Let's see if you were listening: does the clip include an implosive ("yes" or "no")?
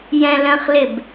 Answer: no